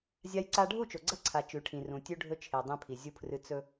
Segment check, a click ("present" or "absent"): present